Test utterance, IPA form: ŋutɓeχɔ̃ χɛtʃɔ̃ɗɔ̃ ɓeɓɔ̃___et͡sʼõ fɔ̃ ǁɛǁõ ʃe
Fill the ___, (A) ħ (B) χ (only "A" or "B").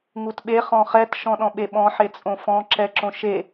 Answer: A